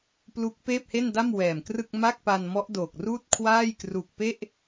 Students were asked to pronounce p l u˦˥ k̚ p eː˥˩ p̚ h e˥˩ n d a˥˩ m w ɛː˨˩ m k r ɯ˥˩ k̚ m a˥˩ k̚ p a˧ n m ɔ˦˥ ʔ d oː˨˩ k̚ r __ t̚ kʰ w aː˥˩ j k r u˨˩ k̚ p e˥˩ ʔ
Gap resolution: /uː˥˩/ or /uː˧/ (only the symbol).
uː˥˩